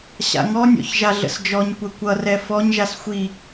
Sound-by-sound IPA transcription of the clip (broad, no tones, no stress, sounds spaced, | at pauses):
ɕ a̰ ŋ ɔ nʲ ɔ̰ ç ʒ a ɮ ə̰ s d͡ʒ ɔ ɲ kʷ ɛ kʷ ʌ r ɛ f ɔ ɲ ʒ a s xʷ i